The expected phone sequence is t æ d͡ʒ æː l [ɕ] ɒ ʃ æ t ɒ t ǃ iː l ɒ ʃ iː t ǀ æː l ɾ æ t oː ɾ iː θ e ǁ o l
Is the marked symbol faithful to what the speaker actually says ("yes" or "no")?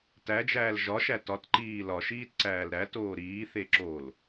no